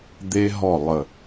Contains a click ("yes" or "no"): no